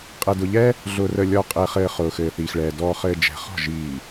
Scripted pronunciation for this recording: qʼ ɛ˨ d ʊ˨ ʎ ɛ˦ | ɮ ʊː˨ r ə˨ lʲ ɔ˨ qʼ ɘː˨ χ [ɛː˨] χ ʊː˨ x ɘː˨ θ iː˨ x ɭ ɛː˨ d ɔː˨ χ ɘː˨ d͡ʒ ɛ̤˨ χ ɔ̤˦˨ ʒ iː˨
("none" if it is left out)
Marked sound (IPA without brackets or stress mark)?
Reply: ɘː˨